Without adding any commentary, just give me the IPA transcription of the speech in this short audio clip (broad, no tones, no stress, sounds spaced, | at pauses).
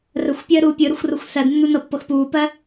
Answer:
r ə xʷ pʲ əː ɾ uː pʲ ɯ ɾ ə xʷ r o xʷ s ɜ d nː u n ɤ pː ɤ x p uː p ɜ